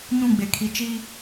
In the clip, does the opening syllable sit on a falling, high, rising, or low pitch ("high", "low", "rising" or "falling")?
falling